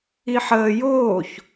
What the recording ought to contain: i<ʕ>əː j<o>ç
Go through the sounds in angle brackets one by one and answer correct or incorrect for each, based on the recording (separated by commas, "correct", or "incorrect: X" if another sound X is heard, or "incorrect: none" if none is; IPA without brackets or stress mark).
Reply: incorrect: ħ, incorrect: oː